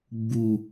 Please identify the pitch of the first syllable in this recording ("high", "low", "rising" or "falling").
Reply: low